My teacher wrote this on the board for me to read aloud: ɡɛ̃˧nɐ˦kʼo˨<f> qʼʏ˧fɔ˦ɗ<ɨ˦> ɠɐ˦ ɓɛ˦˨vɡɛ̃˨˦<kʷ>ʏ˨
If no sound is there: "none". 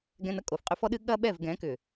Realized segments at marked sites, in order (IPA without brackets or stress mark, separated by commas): f, ɨ˦, k